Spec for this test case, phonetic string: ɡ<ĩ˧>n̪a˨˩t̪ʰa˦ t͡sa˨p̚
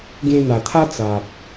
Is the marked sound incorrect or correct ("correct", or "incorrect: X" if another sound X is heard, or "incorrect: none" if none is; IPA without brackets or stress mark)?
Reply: incorrect: ẽ˧